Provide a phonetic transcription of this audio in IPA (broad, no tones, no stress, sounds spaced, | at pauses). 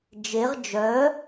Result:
d͡ʒ e ʁ d͡ʒ œ